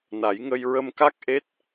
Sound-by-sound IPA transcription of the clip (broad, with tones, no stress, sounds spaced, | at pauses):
n a˨˩˦ j ŋ ə˧ j ɹ ə˧ m k a˦˥ k̚ ʔ e˦˥ t̚